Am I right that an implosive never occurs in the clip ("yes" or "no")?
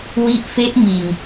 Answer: yes